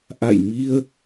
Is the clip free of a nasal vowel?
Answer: yes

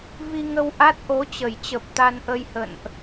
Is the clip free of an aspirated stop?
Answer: yes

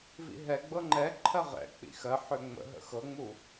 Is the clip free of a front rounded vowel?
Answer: no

